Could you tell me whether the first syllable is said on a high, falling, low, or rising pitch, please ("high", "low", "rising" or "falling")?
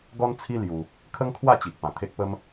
high